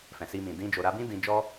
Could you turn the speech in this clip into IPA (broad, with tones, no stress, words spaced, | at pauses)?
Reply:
fɛ̃˨si˧mĩ˨ dĩ˧ d͡ʒo˨ɾa˧bĩ˦ dĩ˧d͡ʒɔ˦